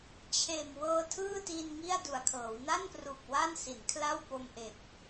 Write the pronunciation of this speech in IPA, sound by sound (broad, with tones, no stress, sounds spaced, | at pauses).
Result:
t͡ɕʰ eː˨˩ m w ɤː˧ tʰ ɯː˥˩ t i˧ n ŋ i˥˩ a̯ d u˨˩ a̯ kʰ ɤː˩˦ w n a˥˩ n p r u˨˩ k̚ w a˥˩ n s i˩˦ n kʰ l a˥˩ w p o˧ m ʔ e˨˩ k̚